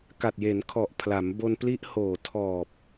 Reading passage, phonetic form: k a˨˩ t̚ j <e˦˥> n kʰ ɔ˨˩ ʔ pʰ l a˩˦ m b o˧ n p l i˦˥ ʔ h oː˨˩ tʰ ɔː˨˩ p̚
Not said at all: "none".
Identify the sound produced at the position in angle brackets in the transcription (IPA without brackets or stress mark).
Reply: e˩˦